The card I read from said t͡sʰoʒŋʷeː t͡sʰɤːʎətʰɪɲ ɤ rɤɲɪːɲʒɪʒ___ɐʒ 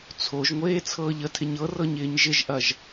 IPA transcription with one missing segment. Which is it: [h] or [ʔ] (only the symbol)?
ʔ